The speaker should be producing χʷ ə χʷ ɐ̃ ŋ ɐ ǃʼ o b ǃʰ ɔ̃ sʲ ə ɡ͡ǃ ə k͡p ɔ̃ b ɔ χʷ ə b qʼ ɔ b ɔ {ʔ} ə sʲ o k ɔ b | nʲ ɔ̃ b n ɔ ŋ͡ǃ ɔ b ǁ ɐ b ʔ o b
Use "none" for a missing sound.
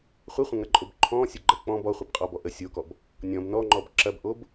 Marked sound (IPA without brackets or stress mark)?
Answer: ʔ